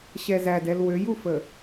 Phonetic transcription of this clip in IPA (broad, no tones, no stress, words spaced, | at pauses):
ɕɛzædɛl wøjufə